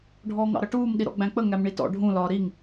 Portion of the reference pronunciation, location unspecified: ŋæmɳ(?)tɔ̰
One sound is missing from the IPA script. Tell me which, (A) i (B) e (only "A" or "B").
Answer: A